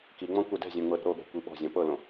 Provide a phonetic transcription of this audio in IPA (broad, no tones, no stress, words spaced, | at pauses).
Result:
kiŋ͡mɔ̃ kʷɛdɛ̤zʲõ ŋ͡mɤɾi̤ɾoɠɛ̤ kʷiɓɔ̤zʲɔ̃ pɤlõ